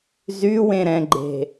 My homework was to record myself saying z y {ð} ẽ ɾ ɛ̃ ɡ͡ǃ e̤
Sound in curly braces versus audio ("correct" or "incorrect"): incorrect